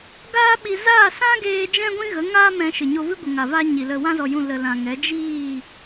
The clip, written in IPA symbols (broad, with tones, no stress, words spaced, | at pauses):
ɡaː˦ɓi˧ zaː˦˨sã˦ɡeː˧ d͡ʒɛ̃˦ɡʷĩ˦ɣə˨˦ŋa˦ mɛ̃˧ ʃɨ˨ɲo˧vɨ˦ɡʷə˨ ŋa˨va˧ɲi˨ lə˨wã˧zɔ˨jũ˨ lə˨lã˨ŋɛ˨˦ d͡ʒiː˦˨